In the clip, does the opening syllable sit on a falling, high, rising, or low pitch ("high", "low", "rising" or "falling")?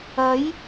rising